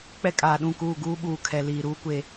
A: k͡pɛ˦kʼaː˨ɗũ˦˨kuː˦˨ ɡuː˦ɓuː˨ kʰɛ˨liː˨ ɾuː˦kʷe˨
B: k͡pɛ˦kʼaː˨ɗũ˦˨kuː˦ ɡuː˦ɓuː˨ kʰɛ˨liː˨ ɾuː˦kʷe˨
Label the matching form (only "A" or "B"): A